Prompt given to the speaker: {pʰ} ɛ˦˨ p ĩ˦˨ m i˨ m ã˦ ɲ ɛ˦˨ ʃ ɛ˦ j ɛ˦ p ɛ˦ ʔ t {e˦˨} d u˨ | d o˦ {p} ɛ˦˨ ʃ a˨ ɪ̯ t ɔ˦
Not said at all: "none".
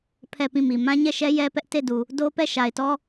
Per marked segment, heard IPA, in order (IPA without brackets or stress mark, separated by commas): pʰ, e˦˨, p